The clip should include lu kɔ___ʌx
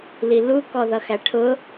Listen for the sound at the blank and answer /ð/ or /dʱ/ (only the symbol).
ð